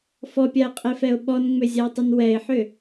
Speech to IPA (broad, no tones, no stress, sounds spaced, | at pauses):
f ɔ pʲ a ɪ̯ qʼ e f ɛ ʊ̯ ɓ ɔ n ŋ͡m ʏ zʲ a ɪ̯ tˤ ʏ n w ɛ ɪ̯ ħ ʏ